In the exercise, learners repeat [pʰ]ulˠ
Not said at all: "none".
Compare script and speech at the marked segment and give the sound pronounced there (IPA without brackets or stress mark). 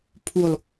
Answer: pʰ